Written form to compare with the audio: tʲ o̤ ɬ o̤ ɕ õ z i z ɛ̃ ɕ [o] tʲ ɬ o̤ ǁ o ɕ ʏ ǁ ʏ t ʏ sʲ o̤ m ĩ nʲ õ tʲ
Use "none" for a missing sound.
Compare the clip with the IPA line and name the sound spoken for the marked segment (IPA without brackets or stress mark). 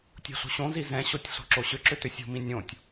o